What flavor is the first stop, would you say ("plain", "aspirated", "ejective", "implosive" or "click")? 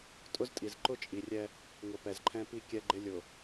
ejective